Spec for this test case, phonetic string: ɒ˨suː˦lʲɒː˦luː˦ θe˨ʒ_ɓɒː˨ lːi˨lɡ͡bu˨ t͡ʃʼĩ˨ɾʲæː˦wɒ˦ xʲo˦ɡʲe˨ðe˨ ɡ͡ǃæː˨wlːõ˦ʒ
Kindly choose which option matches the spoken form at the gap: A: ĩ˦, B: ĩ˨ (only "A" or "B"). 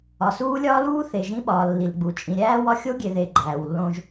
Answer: A